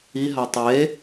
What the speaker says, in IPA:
i ɦ a tˤ e

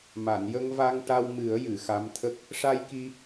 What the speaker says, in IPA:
m a˨˩˨ n j ə˧ ŋ v a˧ ŋ ʈ a˧ w m ɨ˨˩˦ ə̯ j ɨ˨˩˨ x a˧˥ m t̪ʰ ə˦˥ k̚ | ʂ a˧ j k i˧

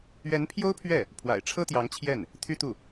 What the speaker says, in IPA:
ɥ ɛ˧˥ n pʰ j o˥ ʊ̯ pʰ ɥ ɛ˥˩ | pʰ w a̰˨˩ ɪ̯ ʈ͡ʂʰ ɤ˥ t̪ j ɑ˧˥ ŋ t͡ɕʰ j ɛ˥˩ n | t̪ʰ y˥ t̪ u˥˩

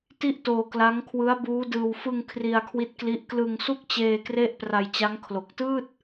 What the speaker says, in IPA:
t i˥˩ ʔ t oː˧ k l a˦˥ ŋ kʰ w ɯ˦˥ a̯ b uː˦˥ d ɯː˧ w f ɯ˧ ŋ kʰ r i˧ a̯ kʰ w i˦˥ t̚ k l i˦˥ ʔ k l ɯ˧ ŋ s u˥˩ k̚ t͡ɕ eː˧ k r e˥˩ ʔ p r a˧ j t͡ɕ a˦˥ ŋ kʰ l o˨˩ k̚ t ɯː˥˩ t̚

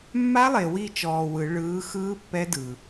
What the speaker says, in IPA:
mː a˦˥ lˠ e˨ w i˥˨ t͡ʃ ɔː˨ w ɯ˨˩˦ ɭ ɯː˨˥ x ɯː˦˥ pː ɛ˦˥ d ɯ˨

